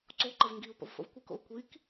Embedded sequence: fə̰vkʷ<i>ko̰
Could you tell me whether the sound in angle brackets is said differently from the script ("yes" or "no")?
no